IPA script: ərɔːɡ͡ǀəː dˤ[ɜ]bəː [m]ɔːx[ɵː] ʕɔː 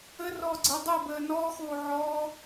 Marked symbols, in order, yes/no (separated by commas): yes, no, no